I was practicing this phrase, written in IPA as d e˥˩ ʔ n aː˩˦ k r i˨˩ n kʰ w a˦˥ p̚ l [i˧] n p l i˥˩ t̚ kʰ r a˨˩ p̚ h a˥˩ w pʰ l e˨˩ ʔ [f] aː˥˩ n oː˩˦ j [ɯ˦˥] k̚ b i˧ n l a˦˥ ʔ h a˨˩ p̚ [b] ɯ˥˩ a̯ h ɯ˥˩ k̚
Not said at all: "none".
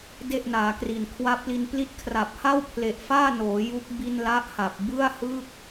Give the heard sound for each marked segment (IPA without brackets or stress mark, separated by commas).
i˧, f, u˦˥, b